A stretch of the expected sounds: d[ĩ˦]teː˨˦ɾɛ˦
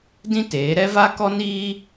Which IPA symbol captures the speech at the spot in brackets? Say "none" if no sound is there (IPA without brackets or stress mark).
ĩ˦